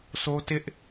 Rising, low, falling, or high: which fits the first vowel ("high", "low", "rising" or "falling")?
high